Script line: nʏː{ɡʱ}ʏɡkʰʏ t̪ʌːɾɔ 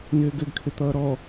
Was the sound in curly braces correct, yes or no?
no